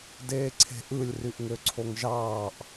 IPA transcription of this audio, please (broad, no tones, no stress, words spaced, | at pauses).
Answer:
deːǀʰe̤ʔɯlʲ ryʔŋøǀʰoŋʒɑːʔ